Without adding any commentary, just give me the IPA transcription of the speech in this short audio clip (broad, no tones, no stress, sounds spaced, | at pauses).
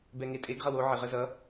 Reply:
b ɛ ŋ e tʼ e ɡ ʁ ʌ w o ʕ ɪ ʁ ə z ʌ